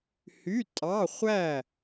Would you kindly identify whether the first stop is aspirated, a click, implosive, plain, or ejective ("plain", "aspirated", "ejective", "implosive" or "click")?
ejective